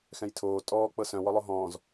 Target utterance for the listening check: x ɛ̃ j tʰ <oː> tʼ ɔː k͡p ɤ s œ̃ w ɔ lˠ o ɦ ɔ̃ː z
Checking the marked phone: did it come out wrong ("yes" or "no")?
no